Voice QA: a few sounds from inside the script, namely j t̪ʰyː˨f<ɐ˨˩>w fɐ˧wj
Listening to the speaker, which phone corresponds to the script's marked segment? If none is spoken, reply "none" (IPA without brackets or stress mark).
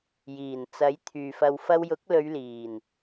ɐ˧